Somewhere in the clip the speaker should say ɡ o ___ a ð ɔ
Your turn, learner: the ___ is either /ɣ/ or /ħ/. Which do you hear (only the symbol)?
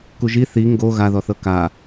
ɣ